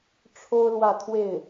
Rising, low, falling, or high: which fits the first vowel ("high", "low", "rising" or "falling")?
high